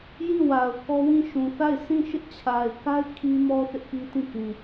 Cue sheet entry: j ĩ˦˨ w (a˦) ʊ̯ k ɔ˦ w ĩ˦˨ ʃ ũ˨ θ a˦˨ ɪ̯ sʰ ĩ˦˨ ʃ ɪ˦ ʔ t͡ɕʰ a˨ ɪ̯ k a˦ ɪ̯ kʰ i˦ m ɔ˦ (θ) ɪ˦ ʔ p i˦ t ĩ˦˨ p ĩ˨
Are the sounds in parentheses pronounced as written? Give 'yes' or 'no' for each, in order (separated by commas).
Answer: no, yes